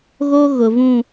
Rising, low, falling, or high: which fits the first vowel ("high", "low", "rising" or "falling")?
high